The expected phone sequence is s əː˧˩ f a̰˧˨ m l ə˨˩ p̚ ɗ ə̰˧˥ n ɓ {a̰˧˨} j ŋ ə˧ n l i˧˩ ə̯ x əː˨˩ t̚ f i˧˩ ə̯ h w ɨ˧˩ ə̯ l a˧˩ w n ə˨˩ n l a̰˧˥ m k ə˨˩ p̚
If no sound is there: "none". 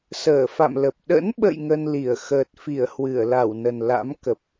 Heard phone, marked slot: ə̰˧˨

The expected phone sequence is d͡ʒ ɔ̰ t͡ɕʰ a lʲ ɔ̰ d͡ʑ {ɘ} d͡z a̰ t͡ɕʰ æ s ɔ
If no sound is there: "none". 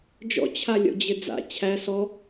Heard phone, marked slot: ɘ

